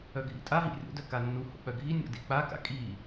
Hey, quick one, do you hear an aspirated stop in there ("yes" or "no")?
no